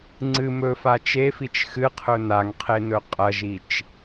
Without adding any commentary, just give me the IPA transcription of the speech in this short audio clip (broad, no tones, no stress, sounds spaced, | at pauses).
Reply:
ŋ͡ǀ ɨ m ɵ f a t͡ʃ e f i t͡ʃ x ɨ qʰ ɵ n a ŋ qʰ e n ɵ qʼ ɐ ʒ i t͡ʃ